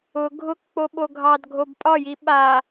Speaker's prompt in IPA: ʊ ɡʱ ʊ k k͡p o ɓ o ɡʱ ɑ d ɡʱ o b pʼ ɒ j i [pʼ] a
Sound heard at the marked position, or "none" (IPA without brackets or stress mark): ɓ